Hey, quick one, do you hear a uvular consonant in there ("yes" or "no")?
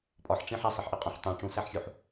yes